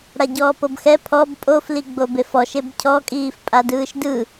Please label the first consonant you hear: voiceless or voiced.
voiced